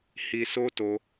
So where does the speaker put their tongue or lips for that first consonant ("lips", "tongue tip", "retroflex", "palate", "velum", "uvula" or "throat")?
throat